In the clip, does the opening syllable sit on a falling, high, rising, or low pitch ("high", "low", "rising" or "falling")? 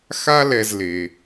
high